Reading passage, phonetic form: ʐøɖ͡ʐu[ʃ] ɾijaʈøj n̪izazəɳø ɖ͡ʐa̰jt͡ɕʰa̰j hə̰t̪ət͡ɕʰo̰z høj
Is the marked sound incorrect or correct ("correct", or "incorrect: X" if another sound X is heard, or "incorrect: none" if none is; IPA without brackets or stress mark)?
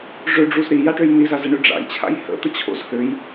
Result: incorrect: z